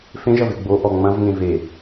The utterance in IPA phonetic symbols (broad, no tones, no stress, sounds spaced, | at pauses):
f ẽ ʒ ɐ v e ɡ͡b o ʔ ɔ ŋ͡m ɐ̃ v ŋ ẽ v e